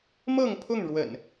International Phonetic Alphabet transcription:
mɤ˥˨ŋpʰʊ˥˨ŋɻwə̰˨˩n

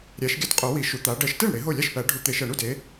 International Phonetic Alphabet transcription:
ɾʲæ˨˦ʃ ɡʲæ˥˩tqʼo˨˩˦ wi˨˩˦ ʃu˨˦t̪a˨˦ ɖɜ˨˩˦ʃte˥˩ɳ ɽe˨˩˦ɦo˥˩ lʲa˥˩ʃpæ˨˩˦ɖʱu˨˩˦ t̪e˨˩˦ʃɜ˨˩˦ɳu˥˩d e˨˦

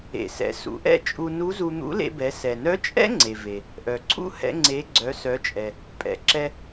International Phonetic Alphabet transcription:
ḛ˩sɛ̰˩˧ sṵ˩˧ʔɛ̰˥ t͡ʃʼu˧nu˧˥zu˧ n̪ṵ˧˥lḛ˧bɛ˩˧ sɛ˩nœ˧˥t͡ʃʼɛ̰˥ ŋ͡ǀe˩ve˩ | ʔœ˩ǀʰṵ˥ hɛ̰˧ŋ͡ǀe˩˧ ɡ͡ǀœ˩˧sœ˩˧t͡ʃʼɛ˩ | pʼɛ̰˩˧ǁɛ˧

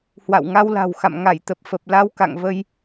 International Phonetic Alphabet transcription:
hwa̰˧˨wŋa˧wla̤˨˩w xa̰˧˨m ŋa˧˩j t̪ə˨˩p̚fə˨˩p̚ la˧wka̰˧˨ŋvə˧j

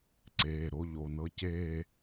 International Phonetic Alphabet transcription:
ǀeː˩˧˩ɾo˥˧ʎo˩˧˩ nɤ˥˧ceː˥˧

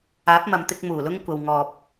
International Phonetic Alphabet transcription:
aː˨˥p̚mɐ˨mt̪ɪ˧k̚ muː˨˩lʊ˥ŋkʷɐ˨w ŋɔː˨p̚

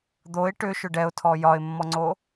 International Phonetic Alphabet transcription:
d̪oɪ̯ ʈʏʃʏ ɖɛʊ̯tʰɔ jɒɪ̯mːɔŋ͡ǀo

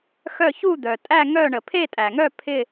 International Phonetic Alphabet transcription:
xœ˥˧ çu˥˧d̪œ˩tʼæ˥˧ ŋœ˥˧ ɳə˩pʰe˥˧tʼæ˩ŋœ˥˧ pʰɪ˥˧

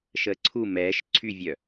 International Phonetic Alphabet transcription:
ʃəːǀʰu mɛːʃ ǀʰyvʲœ

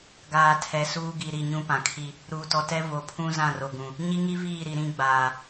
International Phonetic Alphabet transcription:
ɡaː˨tʰɛ˨ suː˦ɡi˨ɾi˦˨ ɲũ˦pã˨kʰi˦ | ɾuː˨tɔ˨tɛ˦ vo˨pʰũ˦ zã˦˨ro˨ɡũ˨ | ɲi˦ŋi˦viː˦˨ɾi˨ ɾĩ˦ɡ͡baː˨

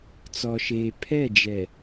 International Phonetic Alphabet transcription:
t͡sɔ˨ʃeː˨ pʰɛ˦˨d͡ʒɛ˨

